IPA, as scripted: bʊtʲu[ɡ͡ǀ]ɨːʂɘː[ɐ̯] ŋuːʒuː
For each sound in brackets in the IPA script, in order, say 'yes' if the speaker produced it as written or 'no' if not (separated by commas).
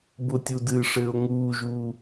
no, no